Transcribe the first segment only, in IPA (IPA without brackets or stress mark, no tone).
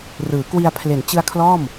r